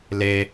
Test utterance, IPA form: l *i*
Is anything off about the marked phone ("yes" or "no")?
yes